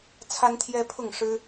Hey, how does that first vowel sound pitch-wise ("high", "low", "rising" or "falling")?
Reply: high